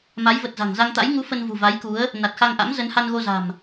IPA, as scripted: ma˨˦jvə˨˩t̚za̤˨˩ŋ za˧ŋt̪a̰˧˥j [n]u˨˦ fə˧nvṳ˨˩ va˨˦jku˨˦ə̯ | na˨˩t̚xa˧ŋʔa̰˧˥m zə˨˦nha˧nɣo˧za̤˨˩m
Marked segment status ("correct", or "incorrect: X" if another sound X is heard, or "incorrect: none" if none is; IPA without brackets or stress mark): incorrect: ŋ